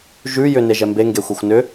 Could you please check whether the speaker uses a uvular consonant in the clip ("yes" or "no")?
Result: no